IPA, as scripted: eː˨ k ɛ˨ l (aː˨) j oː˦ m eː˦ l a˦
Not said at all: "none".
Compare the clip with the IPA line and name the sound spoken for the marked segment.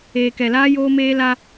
aː˦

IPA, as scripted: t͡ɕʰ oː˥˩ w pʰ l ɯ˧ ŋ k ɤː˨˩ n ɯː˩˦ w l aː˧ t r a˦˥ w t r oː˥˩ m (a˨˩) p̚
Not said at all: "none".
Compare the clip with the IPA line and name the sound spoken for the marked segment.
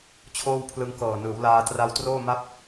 a˥˩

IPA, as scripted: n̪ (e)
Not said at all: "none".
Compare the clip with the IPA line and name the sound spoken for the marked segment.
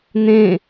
ẽ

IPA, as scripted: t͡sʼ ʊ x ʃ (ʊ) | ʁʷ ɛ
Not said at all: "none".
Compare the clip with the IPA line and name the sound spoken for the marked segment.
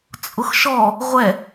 ɔ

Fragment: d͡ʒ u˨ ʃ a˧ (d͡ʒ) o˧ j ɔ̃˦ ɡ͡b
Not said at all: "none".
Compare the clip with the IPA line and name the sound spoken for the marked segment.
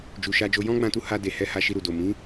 d͡ʒ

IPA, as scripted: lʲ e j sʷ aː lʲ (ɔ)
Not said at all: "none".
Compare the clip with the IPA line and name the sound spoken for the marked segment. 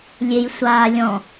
ɔ̃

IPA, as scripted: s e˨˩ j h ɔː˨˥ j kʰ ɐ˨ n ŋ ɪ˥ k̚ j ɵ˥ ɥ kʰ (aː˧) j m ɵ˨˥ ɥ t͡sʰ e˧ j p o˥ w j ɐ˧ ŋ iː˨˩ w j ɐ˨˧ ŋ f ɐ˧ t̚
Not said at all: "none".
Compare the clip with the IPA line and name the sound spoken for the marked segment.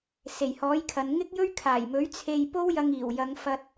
aː˨˩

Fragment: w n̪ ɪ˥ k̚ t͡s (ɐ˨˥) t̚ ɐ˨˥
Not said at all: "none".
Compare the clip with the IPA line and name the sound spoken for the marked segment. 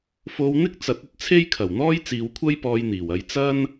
ɐ˨˥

